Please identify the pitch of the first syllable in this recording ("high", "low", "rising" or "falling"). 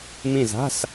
falling